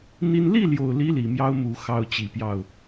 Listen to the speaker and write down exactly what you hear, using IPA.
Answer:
n̪ i˦ n l i˥˨ l j o˨˩ ʊ̯ l i˨˦ l i˨˩ m j ɑ˦ ʊ̯ m u˨˦ x ɑ˦ ʊ̯ t͡ɕ i˨˦ p j ɑ˥˨ ʊ̯

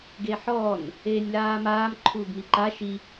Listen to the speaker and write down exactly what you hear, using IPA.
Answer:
ɡ e ħ ɔː n | eː nʲ l aː m aː m ǃʰ uː ɡ m i ǃ a ʃ i

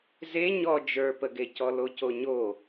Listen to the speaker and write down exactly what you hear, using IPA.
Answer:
z e ɲ ɔ d͡ʒ ə˞ p ə ɡ e c ɔ l o c o ɲ o

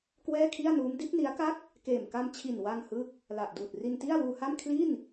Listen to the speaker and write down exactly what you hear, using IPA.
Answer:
k w ɛː˥˩ kʰ i˥˩ a̯ n uː˦˥ m d i˦˥ t̚ n i˦˥ a̯ k a˥˩ k̚ | k eː˨˩ m k a˧ m t͡ɕʰ i˨˩ n w a˧ ŋ h ɯ˦˥ k̚ | l a˨˩ ʔ d uː˨˩ t̚ r i˧ n t i˥˩ a̯ w uː˧ h a˥˩ m kʰ l i˥˩ n

